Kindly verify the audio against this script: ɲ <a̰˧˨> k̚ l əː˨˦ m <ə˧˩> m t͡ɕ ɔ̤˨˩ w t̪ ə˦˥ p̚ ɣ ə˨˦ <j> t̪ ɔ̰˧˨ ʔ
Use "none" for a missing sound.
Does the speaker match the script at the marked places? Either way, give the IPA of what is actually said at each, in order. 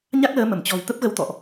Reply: a˦˥, ə˧˩, w

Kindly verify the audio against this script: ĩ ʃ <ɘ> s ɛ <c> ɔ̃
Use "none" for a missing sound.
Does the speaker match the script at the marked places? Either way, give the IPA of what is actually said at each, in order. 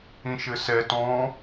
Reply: ɘ, t

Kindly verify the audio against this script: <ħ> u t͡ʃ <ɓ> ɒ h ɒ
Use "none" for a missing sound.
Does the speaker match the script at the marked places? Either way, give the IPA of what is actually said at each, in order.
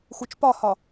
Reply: x, p

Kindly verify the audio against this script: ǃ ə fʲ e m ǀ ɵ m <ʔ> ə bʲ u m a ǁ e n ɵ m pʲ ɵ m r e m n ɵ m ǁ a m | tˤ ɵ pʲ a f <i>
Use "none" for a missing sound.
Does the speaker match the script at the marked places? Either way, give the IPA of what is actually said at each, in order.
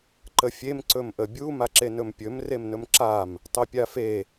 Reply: ʔ, e

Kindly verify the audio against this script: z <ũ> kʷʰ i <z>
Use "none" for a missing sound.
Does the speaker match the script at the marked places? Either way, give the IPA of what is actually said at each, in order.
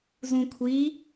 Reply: ũ, none

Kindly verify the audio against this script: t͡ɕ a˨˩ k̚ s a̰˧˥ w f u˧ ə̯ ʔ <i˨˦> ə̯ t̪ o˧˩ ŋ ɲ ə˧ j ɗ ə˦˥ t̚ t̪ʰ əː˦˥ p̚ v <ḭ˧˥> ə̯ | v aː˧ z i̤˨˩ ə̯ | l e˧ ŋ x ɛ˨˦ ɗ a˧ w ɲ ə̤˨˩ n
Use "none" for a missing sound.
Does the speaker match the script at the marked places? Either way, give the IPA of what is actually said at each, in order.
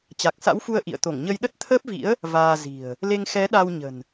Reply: ḭ˧˨, ḭ˧˥

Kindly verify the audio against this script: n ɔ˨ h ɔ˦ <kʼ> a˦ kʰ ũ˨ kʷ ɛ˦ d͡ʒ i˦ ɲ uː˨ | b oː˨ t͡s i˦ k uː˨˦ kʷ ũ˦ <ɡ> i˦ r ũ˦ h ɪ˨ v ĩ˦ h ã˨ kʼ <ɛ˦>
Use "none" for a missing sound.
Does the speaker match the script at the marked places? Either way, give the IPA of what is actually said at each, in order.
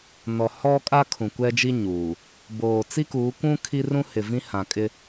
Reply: kʼ, kʰ, ɪ˦

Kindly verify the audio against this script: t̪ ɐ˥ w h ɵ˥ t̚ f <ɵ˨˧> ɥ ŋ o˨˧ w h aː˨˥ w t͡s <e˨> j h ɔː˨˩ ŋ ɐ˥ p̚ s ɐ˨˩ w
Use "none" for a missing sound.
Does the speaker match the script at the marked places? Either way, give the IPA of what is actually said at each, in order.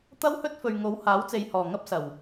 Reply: ɵ˨, e˨

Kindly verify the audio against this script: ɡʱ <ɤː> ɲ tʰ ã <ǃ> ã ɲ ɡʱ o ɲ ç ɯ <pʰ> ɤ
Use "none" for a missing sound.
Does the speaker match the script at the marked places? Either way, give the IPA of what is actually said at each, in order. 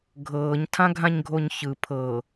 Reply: ɤː, ɡʱ, pʰ

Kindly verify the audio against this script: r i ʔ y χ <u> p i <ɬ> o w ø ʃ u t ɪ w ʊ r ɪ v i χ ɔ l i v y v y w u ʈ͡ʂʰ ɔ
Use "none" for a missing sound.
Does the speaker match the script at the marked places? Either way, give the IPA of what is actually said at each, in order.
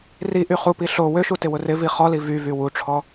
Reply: u, ɬ

